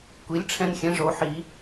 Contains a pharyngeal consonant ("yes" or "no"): yes